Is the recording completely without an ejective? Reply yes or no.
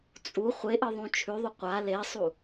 no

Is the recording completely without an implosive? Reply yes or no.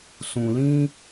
yes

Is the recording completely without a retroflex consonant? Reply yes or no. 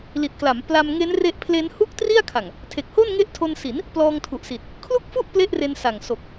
yes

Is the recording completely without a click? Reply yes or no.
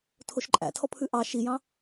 no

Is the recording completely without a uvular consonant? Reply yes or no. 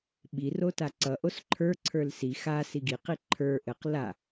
no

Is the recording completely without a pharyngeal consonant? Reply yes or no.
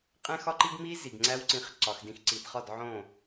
no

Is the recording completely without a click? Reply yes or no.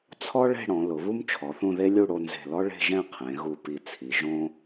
yes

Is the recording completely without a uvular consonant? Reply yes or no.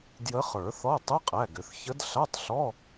no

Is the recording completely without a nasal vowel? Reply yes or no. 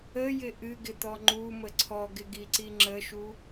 yes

